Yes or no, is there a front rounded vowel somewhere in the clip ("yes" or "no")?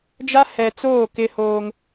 no